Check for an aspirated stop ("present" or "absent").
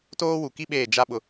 absent